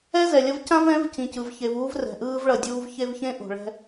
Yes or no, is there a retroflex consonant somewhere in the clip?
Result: yes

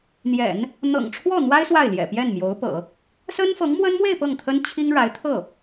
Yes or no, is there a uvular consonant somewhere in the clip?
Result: no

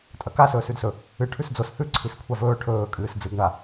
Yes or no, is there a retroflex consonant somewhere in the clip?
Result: yes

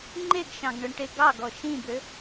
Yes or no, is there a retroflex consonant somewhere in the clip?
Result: yes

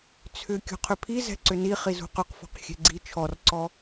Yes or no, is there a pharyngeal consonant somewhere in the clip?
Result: no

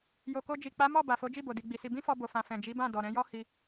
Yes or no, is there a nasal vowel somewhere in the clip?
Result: yes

